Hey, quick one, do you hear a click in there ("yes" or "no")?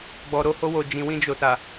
no